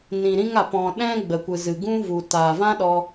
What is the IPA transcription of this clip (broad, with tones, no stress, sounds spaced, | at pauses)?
n ĩ˨ ɾ ĩ˧ ŋ a˨ p ɔ̃˨ ɗ ɛ̃˧ ɡ͡b ə˨ kʷ ɨ˨ z ɨ˨ ɡ ũ˦ v u˨ t aː˨ v ã˦ ɗ ɔ˧